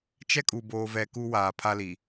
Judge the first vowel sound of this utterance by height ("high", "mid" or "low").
mid